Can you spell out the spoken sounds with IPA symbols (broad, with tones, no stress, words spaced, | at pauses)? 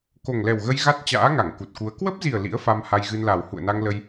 ko˨˩ŋlɛ˨˩wɣə˧j ɣa˦˥t̚t͡ɕa̰ː˧˥ ŋa˧˩ŋku˨˩t̚ku˨˦ə̯ kwə˦˥p̚zi˨˩ə̯ lḭ˧˥ə̯fa˧m ha˧jɣɨ˧nla˨˩w hṵ˧˨ə̯na˧ŋlə˧j